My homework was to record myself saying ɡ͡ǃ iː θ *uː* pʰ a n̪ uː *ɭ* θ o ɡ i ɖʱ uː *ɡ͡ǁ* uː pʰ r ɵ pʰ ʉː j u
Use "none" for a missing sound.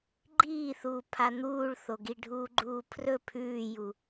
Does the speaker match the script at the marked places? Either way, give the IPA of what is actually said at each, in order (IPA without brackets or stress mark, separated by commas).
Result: uː, ɭ, ɡ͡ǃ